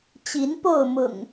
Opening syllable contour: rising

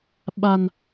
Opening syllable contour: low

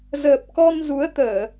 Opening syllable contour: low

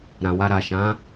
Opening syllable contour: low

